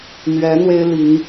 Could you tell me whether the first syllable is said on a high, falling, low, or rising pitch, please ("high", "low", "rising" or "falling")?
rising